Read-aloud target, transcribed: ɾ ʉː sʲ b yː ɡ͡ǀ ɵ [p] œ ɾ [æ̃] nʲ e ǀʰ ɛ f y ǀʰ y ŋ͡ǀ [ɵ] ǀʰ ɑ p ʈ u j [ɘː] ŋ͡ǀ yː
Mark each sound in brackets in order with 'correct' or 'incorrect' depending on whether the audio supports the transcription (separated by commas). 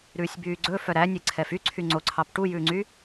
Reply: incorrect, incorrect, incorrect, incorrect